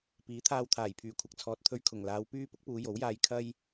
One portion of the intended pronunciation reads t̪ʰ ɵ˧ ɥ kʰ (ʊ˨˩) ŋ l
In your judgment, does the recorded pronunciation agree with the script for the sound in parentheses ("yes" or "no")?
yes